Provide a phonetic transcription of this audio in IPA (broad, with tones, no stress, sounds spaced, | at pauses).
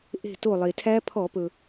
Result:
ʔ e̤˧˩ t o˧˩ lˠ e˩ tʰ æ˦˥ pʰ ɔ˧˩˧ p ɵ˩